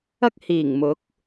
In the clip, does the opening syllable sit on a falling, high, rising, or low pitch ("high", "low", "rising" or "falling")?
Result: high